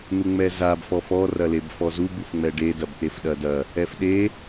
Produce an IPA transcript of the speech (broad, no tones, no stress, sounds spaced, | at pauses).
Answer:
n̪ u ŋ͡m ɛ z a b f ɔ f ɔ r ɐ l e b f ɔ z u b u f ŋ͡m ɛ ɖ e d ɐ b t̪ e f ɗ ɐ d ɐ | ɛ f ɗ e